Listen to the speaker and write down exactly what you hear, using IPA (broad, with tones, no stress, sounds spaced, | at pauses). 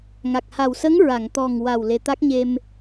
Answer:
ŋ a˨˩ k̚ h a˨˩ w s ə˧˥ ŋ ɹ a˨˩˨ ŋ t̪ ɔ˨˩ ŋ w a˨˩ w l e˨˩ t̪ a˦˥ k̚ ɲ e˧ m